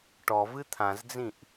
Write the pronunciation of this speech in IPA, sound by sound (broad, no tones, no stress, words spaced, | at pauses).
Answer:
ʈɔvɨ t̪ʰãzd͡zĩʔ